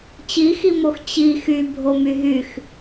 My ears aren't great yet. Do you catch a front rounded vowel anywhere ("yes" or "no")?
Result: yes